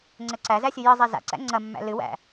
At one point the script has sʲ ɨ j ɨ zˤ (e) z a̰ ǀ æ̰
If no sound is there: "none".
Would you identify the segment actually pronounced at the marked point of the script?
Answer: e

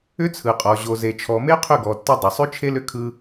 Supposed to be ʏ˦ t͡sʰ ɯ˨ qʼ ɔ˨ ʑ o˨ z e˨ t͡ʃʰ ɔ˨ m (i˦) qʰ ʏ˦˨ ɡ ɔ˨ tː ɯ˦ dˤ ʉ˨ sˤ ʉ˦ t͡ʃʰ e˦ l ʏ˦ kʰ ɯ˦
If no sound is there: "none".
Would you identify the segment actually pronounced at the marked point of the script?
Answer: e˦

